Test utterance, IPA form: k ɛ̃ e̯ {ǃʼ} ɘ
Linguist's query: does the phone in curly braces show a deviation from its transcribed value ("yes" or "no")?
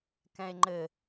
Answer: yes